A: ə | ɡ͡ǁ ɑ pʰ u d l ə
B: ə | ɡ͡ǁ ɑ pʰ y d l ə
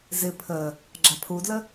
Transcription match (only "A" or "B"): A